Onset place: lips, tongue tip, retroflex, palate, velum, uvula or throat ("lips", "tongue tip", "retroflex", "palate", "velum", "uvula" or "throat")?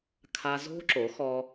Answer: velum